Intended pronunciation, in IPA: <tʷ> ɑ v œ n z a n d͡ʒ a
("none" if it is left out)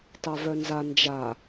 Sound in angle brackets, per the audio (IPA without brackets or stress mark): t